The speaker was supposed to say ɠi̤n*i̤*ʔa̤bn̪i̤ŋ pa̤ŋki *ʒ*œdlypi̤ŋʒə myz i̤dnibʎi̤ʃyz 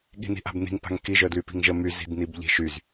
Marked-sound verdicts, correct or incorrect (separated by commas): correct, correct